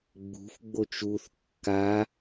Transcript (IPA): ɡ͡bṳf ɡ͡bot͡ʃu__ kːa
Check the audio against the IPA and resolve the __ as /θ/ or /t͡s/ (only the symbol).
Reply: θ